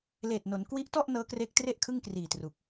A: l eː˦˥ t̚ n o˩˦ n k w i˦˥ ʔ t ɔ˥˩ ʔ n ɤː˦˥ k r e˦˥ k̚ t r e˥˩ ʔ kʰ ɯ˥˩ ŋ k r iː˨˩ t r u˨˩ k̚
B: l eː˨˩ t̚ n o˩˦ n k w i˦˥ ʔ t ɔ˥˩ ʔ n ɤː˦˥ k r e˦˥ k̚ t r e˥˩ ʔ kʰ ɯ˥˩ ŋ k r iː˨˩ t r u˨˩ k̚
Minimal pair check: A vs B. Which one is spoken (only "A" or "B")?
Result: B